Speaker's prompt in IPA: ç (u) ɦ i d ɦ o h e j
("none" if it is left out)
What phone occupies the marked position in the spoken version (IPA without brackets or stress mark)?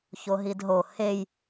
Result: o